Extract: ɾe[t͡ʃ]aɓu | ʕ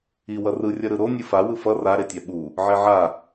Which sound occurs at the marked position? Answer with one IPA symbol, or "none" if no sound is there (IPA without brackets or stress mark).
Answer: tʲ